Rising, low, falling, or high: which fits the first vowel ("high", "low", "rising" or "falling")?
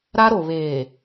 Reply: high